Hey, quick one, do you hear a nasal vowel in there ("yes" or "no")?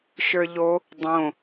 yes